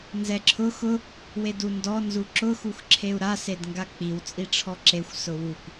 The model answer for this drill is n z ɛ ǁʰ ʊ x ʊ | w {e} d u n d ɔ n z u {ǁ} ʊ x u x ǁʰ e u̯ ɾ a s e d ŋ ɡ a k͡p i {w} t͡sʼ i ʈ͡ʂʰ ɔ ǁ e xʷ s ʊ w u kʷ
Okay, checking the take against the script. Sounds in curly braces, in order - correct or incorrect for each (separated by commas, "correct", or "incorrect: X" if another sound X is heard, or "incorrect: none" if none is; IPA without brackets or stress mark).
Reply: correct, correct, correct